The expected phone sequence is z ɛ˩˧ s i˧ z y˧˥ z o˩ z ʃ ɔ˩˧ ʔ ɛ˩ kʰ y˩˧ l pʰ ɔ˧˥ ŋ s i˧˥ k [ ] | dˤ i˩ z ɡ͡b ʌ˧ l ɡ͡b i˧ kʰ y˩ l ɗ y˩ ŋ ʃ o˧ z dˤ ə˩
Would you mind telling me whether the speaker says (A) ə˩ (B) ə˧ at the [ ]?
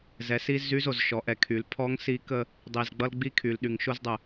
B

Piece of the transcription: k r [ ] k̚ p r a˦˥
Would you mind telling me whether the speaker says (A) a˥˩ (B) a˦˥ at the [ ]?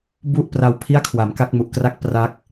A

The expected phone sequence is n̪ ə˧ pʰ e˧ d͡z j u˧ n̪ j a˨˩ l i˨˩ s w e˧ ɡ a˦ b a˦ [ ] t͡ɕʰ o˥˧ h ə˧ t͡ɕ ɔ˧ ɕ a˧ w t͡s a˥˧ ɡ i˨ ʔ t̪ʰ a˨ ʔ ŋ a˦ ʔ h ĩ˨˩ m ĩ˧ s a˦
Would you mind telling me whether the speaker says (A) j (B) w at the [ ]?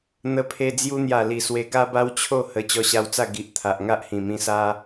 B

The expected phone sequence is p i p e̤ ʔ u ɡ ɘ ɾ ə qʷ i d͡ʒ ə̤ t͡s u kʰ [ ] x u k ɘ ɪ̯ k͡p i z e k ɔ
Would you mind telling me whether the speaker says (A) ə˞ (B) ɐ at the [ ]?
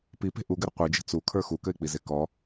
A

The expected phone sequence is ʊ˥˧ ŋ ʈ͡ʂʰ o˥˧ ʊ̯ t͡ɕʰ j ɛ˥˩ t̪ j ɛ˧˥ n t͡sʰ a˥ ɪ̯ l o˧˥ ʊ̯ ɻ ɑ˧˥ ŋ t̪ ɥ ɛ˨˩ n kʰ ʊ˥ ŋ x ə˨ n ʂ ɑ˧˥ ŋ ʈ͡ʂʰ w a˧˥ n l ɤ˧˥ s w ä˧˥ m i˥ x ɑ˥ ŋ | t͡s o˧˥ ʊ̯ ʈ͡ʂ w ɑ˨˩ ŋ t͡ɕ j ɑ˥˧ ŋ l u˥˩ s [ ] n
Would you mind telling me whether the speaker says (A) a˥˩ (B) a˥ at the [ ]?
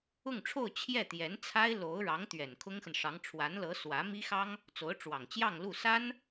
B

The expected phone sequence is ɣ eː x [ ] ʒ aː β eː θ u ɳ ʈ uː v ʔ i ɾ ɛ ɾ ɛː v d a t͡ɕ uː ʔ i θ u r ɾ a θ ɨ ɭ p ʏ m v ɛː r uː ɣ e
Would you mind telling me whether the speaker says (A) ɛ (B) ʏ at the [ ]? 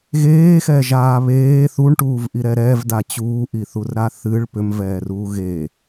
A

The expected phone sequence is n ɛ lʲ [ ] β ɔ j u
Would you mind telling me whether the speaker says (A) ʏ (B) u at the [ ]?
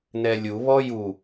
B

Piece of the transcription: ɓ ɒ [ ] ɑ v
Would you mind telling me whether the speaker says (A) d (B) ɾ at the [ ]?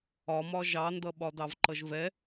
A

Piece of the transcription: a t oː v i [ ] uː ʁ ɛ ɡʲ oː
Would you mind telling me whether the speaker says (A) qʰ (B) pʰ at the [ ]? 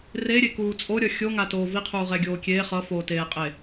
A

